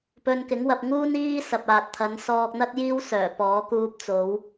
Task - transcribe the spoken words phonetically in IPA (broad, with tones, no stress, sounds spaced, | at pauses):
p ɵ˧ n k ɪ˨˥ ŋ w ɐ˧ p̚ ŋ uː˥ n iː˥ s ɐ˨ p̚ aː˨ t̚ t̪ʰ ɐ˨˧ n s ɔː˧ k̚ n̪ ɐ˥ t̚ j iː˥ w s œː˨˩ p ɔː˨˧ k uː˧ p̚ t͡s o˨˧ w